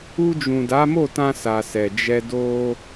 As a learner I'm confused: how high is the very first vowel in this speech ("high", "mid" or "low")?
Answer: high